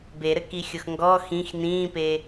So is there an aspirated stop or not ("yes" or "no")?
no